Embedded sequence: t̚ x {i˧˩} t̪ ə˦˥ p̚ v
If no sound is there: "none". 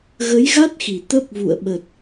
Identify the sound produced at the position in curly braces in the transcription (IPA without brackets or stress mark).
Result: i˧˩